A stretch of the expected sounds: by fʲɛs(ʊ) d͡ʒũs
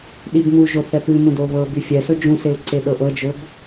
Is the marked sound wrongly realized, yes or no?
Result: yes